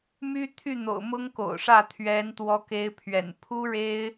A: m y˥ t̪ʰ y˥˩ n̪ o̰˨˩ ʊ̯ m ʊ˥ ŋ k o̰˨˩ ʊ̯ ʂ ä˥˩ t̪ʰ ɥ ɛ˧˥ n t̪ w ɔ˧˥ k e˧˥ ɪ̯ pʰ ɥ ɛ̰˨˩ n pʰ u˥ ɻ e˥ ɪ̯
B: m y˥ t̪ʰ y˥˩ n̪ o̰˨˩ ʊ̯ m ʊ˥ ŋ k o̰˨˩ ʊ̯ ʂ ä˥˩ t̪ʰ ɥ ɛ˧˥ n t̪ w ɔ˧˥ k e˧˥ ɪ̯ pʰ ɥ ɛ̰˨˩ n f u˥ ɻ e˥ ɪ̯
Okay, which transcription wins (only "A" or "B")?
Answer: A